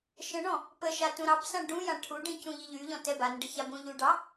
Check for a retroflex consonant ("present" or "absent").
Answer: present